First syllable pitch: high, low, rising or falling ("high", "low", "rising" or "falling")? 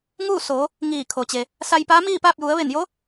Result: falling